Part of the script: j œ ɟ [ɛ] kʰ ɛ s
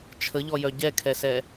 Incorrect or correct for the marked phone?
correct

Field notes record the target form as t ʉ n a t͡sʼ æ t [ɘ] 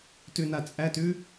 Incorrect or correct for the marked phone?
incorrect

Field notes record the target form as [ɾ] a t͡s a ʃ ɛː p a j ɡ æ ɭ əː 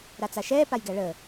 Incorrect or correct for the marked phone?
correct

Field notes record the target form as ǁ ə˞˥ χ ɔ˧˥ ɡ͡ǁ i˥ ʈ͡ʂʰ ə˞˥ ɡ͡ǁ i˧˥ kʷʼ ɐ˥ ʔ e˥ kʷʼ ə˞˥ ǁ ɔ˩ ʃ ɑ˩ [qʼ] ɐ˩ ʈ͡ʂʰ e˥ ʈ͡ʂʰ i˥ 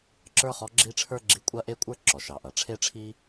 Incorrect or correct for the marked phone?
incorrect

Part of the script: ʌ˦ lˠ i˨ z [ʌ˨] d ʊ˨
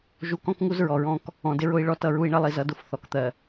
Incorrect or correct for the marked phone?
incorrect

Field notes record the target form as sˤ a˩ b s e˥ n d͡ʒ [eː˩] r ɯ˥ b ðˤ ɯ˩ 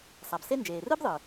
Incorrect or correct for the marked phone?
correct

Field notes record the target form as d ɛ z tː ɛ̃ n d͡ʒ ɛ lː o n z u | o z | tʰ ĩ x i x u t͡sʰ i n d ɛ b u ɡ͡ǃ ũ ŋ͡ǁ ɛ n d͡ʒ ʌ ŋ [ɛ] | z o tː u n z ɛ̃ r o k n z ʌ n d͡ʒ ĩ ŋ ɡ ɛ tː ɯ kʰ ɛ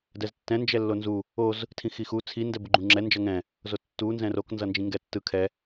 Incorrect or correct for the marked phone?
incorrect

